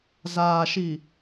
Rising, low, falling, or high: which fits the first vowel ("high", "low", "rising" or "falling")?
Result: low